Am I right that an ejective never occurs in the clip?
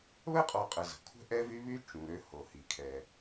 no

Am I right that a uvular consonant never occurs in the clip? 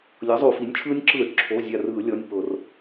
yes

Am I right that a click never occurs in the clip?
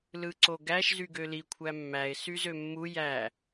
no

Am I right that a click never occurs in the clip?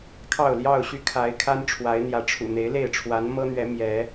yes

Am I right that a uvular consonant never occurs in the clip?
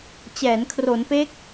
yes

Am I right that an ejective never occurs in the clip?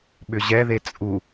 no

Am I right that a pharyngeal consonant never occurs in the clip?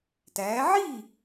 no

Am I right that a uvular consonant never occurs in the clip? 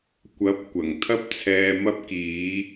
yes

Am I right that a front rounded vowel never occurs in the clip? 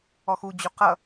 yes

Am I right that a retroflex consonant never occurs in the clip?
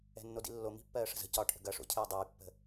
no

